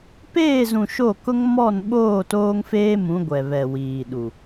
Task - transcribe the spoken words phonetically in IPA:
p eː˦˨ z ũ˨ ʃ o˦˨ k ʊ˦ ŋ m ɔ˦˨ n ɓ oː˦˨ t oː˦ ŋ f eː˦ m ũ˨˦ ɡʷ ɛ˨ β ɛ˨ w iː˨ ɗ u˨

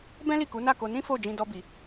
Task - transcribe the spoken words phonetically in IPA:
b ɛ̃˦ l i˦˨ k u˨˦ n a˦˨ k o˧ n ĩ˦ f o˦˨ d͡ʒ ĩ˧ d ɔ˦ b i˧

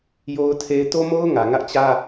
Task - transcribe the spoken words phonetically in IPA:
j o˦ ʊ̯ tʰ e˦ ɪ̯ t o˦ m o˦ ʊ̯ ŋ ä˨ ŋ ä˦ ʔ t͡ɕ ä˦

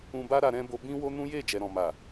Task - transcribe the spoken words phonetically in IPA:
ũ˧ b a˦ ɾ a˧ ɾ ɛ̃˦ b o˧ b ĩ˦ w o˦ n ũ˦ j e˦˨ d͡ʒ ɛ˨ ɾ ɔ̃˨ m a˨

